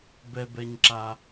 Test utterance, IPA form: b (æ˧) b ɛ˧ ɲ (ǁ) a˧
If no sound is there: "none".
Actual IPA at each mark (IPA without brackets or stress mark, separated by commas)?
ɛ˧, ǁ